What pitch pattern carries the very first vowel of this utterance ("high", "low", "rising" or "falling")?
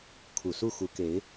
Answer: low